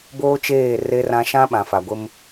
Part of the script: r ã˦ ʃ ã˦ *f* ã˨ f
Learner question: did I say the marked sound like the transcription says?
no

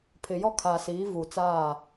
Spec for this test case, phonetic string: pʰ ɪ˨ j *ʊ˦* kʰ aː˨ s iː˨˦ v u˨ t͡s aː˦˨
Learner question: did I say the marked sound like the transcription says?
no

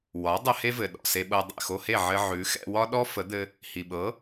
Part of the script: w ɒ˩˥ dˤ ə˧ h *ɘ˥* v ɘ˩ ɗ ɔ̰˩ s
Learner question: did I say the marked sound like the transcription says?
no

